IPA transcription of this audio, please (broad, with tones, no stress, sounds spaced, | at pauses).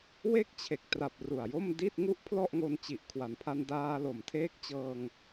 w e˥˩ k̚ t͡ɕʰ e˨˩ k̚ t r a˨˩ p̚ r u˨˩ a̯ j o˥˩ m d i˥˩ t̚ ŋ u˥˩ ʔ pʰ l ɔ˥˩ ʔ ŋ o˧ n t͡ɕ i˨˩ ʔ kʰ w a˩˦ n pʰ a˧ n d aː˧ l o˨˩ m tʰ eː˦˥ k̚ t͡ɕ ɤː˧ ŋ